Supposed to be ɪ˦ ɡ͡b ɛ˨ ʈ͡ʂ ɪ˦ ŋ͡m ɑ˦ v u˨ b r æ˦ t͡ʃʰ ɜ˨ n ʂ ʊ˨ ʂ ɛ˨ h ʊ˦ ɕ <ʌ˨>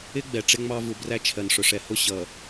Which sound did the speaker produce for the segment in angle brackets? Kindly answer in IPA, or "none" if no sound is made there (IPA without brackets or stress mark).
ʌ˨